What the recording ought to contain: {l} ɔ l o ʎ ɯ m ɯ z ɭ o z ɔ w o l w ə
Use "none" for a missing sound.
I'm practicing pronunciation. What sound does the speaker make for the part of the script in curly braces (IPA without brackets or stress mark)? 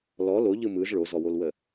l